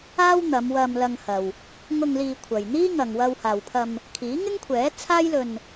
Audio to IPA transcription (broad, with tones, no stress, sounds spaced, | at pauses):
aː˥ w n̪ ɐ˨˧ m w ɐ˧ m l ɐ˧ ŋ h ɐ˨ w | ŋ ʊ˧ ŋ l iː˧ kʷʰ ɐ˨ j n̪ iː˥ ŋ ɐ˨ ŋ w ɐ˧ w h aː˨ w pʰ ɐ˧ m | kʰ iː˨˥ ŋ ɪ˥ ŋ kʷʰ ɛː˨˥ t͡sʰ aː˥ j l ɵ˧ n